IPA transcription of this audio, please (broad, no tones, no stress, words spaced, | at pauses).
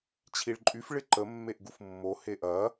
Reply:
t͡ɕʰiɭǃʼyf ɭɪǃə mːeʔɡufmːo heʔɐ